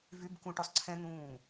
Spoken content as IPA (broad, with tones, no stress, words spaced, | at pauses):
vy˧˥˧bkũ˧ʈo˧sˤ ǀʰɛ̃˧n̪ũː˧˩